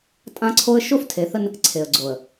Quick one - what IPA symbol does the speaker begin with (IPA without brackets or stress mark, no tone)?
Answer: tʼ